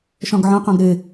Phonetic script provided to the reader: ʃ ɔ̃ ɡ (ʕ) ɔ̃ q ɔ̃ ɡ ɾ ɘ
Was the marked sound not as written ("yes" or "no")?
no